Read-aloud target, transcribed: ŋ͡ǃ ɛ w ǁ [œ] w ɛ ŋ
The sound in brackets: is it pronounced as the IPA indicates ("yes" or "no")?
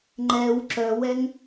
yes